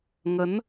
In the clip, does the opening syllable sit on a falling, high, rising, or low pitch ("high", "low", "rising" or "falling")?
rising